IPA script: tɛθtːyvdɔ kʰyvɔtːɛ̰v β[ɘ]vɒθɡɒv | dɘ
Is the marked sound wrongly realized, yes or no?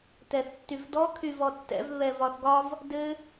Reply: yes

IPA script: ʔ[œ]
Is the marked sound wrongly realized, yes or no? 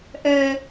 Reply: no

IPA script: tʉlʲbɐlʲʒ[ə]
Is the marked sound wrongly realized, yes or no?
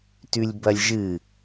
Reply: yes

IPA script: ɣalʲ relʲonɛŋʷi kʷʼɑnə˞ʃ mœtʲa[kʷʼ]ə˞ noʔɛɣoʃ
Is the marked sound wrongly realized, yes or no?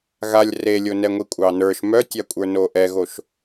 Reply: no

